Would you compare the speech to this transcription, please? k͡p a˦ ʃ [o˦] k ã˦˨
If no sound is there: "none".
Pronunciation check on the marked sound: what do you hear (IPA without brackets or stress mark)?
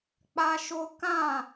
o˦